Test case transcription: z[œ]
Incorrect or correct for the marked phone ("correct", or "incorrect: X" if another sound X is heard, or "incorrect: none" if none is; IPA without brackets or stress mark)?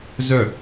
correct